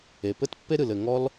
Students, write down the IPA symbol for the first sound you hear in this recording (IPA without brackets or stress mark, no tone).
e